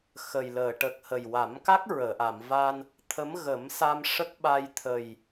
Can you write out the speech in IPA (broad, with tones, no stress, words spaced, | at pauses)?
xə˨˩jləː˨˩˨ʈə˨˩k̚ hə˨˩jwa˨˩˦mka˦˥k̚ ɹəː˨˩˨ʔa˨˩˨mva˧n | t̪ʰə˧˥mɣə˨˩˦msa˧m ʂə˦˥k̚ɓa˧j t̪ʰə˨˩j